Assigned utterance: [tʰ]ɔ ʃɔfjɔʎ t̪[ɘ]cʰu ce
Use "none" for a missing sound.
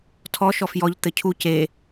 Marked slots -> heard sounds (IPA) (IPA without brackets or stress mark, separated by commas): tʰ, ɘ